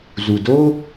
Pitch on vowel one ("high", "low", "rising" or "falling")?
low